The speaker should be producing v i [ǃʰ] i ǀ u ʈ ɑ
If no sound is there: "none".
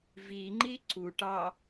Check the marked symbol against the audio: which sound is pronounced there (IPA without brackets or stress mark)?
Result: ŋ͡ǃ